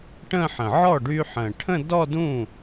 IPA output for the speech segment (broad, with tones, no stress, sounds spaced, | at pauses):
ʈ ə̃˥˧ ħ ə̃˨˩ ʕ ɔ˥˩ ɖ y˧ ħ ə̃˨˩ ʈʰ ə̃˥˧ d ɔ˥˧ d ũ˥˩